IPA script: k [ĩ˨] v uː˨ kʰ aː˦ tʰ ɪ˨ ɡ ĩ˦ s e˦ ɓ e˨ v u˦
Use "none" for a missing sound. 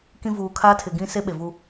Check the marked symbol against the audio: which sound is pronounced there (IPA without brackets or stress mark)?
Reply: ĩ˨